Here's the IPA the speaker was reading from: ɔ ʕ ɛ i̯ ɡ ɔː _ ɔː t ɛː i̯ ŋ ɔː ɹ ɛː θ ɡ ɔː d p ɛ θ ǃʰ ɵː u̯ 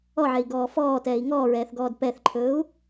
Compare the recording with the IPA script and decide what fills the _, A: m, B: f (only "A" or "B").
B